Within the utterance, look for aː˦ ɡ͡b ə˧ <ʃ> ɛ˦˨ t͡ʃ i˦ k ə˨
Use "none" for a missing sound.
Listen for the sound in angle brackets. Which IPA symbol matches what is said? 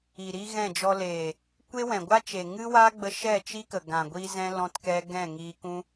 ʃ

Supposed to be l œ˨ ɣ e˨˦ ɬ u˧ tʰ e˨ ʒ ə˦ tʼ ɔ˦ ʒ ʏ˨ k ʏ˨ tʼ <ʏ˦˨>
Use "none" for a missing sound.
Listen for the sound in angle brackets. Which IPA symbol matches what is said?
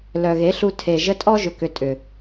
ʏ˨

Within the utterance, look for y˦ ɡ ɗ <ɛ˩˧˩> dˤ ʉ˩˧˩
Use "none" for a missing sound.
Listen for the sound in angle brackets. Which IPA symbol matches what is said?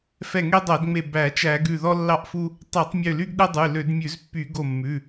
ɛ˦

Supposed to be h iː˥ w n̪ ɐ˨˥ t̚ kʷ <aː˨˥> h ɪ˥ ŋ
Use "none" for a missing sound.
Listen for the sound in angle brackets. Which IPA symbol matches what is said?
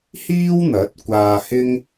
aː˧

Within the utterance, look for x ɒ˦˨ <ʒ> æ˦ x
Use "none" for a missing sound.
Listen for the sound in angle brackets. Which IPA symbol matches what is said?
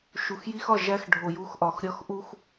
ʒ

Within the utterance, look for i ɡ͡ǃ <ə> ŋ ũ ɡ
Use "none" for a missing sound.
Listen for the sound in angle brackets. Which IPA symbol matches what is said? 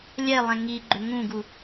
ʏ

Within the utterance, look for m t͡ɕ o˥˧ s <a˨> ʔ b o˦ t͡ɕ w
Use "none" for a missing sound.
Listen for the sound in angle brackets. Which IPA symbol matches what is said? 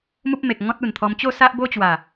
a˦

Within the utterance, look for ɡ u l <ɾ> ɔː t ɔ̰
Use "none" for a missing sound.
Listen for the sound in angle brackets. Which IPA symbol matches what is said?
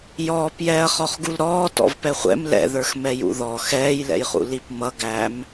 ɾ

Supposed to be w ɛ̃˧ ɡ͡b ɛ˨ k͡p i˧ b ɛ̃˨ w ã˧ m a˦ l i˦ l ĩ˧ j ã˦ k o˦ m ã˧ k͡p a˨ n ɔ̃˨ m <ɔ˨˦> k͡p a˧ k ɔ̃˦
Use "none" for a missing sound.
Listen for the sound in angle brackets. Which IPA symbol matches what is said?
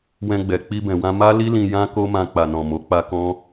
o˨˦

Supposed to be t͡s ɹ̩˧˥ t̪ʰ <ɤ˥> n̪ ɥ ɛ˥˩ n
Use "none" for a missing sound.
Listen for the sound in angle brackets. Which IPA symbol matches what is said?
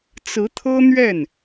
ɤ˥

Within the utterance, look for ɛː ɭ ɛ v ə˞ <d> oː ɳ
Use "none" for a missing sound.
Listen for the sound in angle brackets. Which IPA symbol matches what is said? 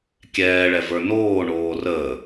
n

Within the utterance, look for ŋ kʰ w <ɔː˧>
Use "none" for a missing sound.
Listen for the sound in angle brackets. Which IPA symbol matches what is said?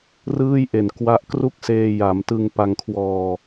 ɔː˧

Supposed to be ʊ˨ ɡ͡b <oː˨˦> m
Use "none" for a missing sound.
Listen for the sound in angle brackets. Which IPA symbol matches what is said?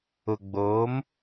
oː˨˦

